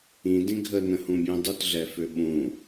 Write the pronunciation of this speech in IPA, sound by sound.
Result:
ĩ d ĩ ɡʱ ə n ə̃ h ũ bʲ ũ dˤ u t ɮ ɛ f ø ɓ ũ

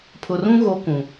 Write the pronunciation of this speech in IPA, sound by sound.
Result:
pʰ ʊ˨ r ũ˦ ɣ o˦ k ũ˨

